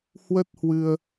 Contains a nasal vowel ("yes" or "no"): no